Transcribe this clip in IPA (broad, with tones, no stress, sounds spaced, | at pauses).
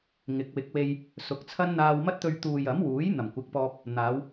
ŋ ɪ˨˥ k̚ w ɪ˨˥ k̚ w e˧ j | s ʊ˨˥ k̚ t͡sʰ ɐ˥ n n̪ aː˧ w m ɐ˥ t̚ t̪ ɵ˧ ɥ t̪ uː˨ j ɐ˨˥ m w uː˨˥ j n̪ ɐ˨˩ m kʷ ɪ˨˥ k̚ p ɔː˧ p̚ | n̪ aː˨˧ w